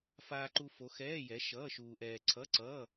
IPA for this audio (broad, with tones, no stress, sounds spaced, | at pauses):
f aː˧ ǃ u˧ f o˨˥ x ɛː˧˥˧ j ɛ˨˥ ʃ ʌː˧˥˧ ʃ uː˧ ʔ ɛː˧ ǀʰ ʌ˧˥˧ ǀ ʌː˧˥˧